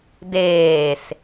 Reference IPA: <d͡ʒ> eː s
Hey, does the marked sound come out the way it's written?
no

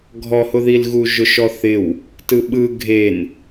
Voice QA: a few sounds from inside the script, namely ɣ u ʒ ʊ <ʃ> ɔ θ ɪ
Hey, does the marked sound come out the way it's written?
yes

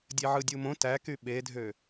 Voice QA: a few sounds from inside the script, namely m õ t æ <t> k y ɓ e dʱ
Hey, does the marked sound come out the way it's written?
no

